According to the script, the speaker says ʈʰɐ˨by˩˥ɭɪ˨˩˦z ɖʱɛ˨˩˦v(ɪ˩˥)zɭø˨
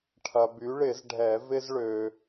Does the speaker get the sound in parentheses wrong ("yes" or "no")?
yes